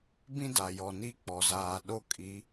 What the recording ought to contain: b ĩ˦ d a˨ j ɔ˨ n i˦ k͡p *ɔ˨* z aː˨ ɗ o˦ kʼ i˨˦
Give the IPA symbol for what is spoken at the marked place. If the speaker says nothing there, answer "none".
ɔ˨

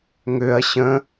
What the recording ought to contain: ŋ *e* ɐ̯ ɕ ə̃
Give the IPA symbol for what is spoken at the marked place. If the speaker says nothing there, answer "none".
ø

